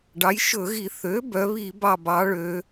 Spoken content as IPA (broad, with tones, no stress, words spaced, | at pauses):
ɖɑ˩˥jʃɵ˧˩˧ɣi˧˩˧ θø˩˥ bœ˩˧βi˧˩˧bɑ˧˩bɑ˩˧ ɭø˩˧